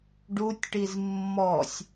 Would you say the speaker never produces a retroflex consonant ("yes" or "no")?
no